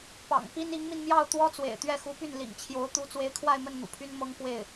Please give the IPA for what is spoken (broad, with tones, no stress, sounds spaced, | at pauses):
p ɑ̰˨˩ ŋ p i˥ n i˧˥ ŋ m i˧ n m j ɑ˥˩ ʊ̯ t̪ w ɔ˥ t͡s w ḛ˨˩ ɪ̯ t̪ ɥ ɛ˥˩ x u˧˥ p y˥˩ n l ḭ˨˩ ŋ t͡ɕʰ j o˧˥ ʊ̯ t̪ u˧˥ t͡s w e˧˥ ɪ̯ kʰ w a˥˧ ɪ̯ m ə˥˩ n n̪ ṵ˨˩ pʰ y˥ n m ɤ˥ ŋ k w e˥˩ ɪ̯